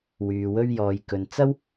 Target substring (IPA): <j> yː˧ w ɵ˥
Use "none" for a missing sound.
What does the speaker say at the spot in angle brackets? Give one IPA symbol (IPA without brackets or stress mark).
w